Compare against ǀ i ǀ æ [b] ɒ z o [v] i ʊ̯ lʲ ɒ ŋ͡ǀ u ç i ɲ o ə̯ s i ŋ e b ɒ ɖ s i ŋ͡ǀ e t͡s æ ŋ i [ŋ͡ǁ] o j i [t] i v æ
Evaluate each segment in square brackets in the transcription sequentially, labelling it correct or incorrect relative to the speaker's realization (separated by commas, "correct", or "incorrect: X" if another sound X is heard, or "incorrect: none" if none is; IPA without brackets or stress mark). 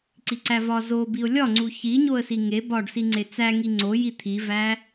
incorrect: v, incorrect: b, incorrect: ŋ͡ǀ, incorrect: t̪ʰ